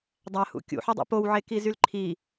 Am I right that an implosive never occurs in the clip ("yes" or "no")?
yes